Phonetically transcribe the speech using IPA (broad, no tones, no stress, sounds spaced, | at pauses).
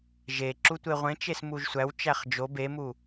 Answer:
ʒ e ǁ u tʷ e ʁʷ ẽ t͡ʃ e s m u ʒ sʷ æ w t͡ʃ æ χ d͡ʒ o b e m u